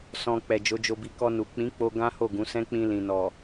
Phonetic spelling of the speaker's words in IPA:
sɔ̃˧ k͡pɛ˨ d͡ʒo˨˦d͡ʒo˧bi˧ kɔ˧nu˨ k͡pĩ˨˦k͡po˧ ɡã˦ho˦˨ɡũ˨˦sɛ̃˦ k͡pĩ˧ lĩ˨nɔ˨

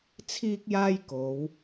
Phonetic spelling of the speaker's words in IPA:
t͡sʰiː˥k̚jaː˥jko˨˧w

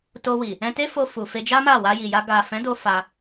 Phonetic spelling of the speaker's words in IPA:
to˧wi˨ | ɛ̃˧ te˦fo˧fu˨ fe˧d͡ʒa˦ma˦˨ wa˧ji˨ja˧ ɡa˨fɛ̃˨˦ do˦fa˧

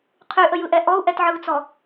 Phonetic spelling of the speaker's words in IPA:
qʰyʔəjɯʔɛ ʔɔu̯ʔɛtʕɯu̯t͡sɔ

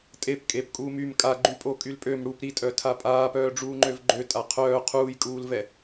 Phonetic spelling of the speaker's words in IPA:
tʼep kʼep kʼuːmym kʼaɡ͡ǃypʼo kʼylpʼøm ɽup ɾi tʼœtʰapʼaːpœː ɖ͡ʐuːŋ͡ǃøvɡ͡ǃøtʼa qʰœː qʰuːjkʼuːlvɛ

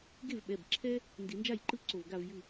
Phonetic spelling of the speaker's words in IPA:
ɡe˥˩vɓɛ˩˧˩bǁʰɛ˦ | ndi˨˩˦nd͡ʒa˥˩jǃɯ˥˩ ǀo˧˩v ɡa˧˩vjɯ˧˩

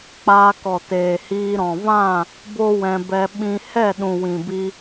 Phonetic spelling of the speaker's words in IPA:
k͡paː˧kɔ˨ teː˨hiː˧ ɾɔ̃˨vã˦˨ | bo˦wɛ̃˧bɛ˧ ɓĩ˧ hɛ˦˨ɗũ˨ wĩ˨bi˧

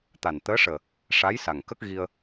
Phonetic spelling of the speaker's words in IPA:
t̪a˨˩n t̪əː˧˥ʂəː˨˩ | ʂa˧˥jsa˨˩ŋkə˦˥k̚ ɣi˧ə̯

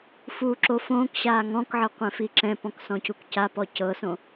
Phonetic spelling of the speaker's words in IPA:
fuːǁofõːkɕaː ŋɔ̃kʕɤ qʷɛ̃fiǁɛ̃pɔ̃k sɔ̃cukcapɔ cɤsõ

